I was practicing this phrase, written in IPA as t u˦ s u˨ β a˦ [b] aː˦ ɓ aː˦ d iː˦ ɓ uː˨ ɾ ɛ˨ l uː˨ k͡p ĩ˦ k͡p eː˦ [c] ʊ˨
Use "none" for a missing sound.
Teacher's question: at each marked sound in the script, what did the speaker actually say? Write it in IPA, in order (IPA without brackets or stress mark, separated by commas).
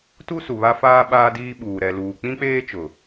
f, t͡ʃ